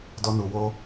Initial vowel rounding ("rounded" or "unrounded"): rounded